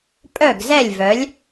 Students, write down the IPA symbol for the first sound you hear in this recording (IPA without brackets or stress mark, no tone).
pʼ